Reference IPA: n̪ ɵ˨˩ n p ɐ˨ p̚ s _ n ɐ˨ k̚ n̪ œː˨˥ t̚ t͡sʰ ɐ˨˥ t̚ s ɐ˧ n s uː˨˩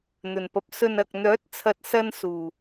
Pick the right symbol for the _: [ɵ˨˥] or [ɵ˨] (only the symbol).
ɵ˨